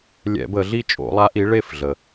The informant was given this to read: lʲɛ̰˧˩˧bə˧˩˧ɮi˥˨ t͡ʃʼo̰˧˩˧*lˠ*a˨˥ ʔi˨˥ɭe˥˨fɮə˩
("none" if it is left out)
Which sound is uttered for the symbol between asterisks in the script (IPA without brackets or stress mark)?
lˠ